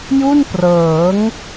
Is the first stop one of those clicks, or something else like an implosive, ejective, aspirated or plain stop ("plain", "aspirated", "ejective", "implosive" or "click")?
plain